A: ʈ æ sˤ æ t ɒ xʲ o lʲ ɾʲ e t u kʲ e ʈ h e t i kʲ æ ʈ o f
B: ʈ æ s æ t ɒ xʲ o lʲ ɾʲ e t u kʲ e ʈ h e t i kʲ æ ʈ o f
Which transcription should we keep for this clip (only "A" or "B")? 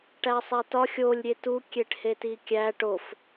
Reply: A